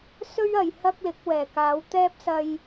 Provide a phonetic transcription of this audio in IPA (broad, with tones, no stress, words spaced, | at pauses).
sɵ˥ɥɐ˨j hɐ˥k̚lɪ˨˥k̚wɛː˨˩ kaː˨˧wt̪ɛː˥p̚sɐ˧j